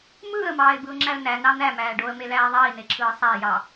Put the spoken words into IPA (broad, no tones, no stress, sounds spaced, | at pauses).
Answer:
m ɯː ə̯ m ɑː ɪ̯ b ɯ ʊ̯ ŋ͡ǁ æ ə̯ n æ n ɑ n̪ æ m æː ɖ o ə̯ m e l æː ðˤ iː n e ǁʰ ɯː sˤ æ j ɑ